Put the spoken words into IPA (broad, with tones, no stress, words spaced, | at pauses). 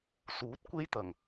suː˨˥t̚ kʷe˥jt̪ɐ˨˩ŋ